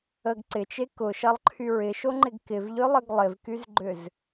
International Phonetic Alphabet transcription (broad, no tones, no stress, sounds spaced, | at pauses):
ə ɡ ǀ ɪ t͡ʃ e k ʊ ʃ ɐ lˠ ǃʰ y ɹ ɪ ʃ o ŋ͡ǃ ɪ ɡ k ɪ v ʎ ʏ lˠ ə ɡ lˠ ɪ v k y z ɡ͡ǃ ʏ z